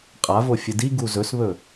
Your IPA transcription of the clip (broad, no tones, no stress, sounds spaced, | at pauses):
qʼ a v o fʲ ɨ d i ɡ u z ɵ s β ɵ